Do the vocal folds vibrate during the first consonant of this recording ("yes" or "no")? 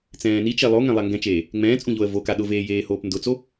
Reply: no